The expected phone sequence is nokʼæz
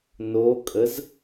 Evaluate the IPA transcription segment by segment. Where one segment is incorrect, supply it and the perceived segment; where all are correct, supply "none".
æ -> ə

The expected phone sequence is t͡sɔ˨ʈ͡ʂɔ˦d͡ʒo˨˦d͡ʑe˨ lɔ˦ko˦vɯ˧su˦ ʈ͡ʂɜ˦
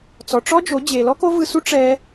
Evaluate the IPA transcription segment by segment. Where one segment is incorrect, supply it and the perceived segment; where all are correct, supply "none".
ɜ˦ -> ɛ˦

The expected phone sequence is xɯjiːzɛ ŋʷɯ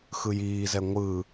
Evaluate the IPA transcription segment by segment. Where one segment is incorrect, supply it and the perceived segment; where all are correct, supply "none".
none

